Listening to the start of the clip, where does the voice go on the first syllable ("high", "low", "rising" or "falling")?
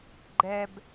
low